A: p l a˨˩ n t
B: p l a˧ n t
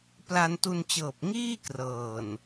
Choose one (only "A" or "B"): B